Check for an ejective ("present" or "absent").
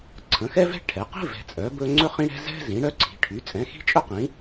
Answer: present